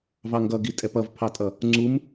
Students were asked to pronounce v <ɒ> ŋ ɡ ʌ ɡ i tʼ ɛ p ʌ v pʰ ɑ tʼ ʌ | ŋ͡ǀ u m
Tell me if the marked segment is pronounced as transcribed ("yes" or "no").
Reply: no